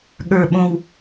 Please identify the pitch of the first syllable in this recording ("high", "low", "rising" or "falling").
falling